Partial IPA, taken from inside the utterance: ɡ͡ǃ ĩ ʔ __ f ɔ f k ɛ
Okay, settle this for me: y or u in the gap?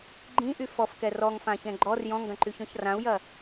y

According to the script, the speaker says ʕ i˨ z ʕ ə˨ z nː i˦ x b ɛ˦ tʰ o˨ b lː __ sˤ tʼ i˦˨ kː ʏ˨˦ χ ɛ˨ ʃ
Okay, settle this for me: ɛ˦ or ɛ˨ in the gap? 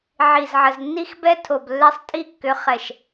ɛ˦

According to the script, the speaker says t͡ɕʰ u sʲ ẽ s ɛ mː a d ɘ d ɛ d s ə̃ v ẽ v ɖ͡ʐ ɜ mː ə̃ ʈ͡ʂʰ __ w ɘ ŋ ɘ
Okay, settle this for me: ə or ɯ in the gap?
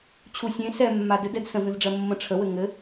ə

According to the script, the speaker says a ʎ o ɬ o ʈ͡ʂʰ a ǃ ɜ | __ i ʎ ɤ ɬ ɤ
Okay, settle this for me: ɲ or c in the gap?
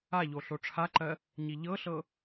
ɲ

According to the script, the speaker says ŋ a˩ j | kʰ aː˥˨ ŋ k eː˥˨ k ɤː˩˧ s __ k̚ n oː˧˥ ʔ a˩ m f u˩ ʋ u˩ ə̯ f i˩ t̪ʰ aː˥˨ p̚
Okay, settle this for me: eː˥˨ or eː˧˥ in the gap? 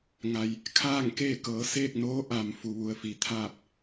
eː˥˨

